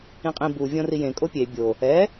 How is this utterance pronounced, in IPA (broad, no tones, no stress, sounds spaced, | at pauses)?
ĩ qʼ ĩ b u vʲ ɔ̃ r i j ẽ kʼ o pʲ e bʲ o | ɛ